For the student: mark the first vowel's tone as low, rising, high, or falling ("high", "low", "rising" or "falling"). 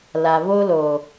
low